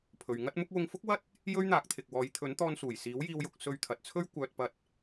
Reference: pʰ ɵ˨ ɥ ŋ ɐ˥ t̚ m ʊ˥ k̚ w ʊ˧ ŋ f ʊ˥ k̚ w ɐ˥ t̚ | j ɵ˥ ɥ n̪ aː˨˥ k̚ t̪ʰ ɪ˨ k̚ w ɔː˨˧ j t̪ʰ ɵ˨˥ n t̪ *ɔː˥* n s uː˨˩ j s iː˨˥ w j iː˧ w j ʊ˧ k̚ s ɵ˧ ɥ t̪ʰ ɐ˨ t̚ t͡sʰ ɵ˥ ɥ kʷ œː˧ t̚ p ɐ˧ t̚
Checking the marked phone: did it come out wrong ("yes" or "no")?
yes